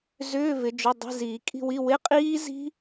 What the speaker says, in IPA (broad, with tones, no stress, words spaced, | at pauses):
zʏː˧˥˧vɪ˨˦ d͡ʒʏ˧˥˧dˤi̤˧˥˧ ziː˨˩˦kʼi̤˦˨wi˧˥˧ wɪ˧˥˧qʼiː˦˥zi̤˦˥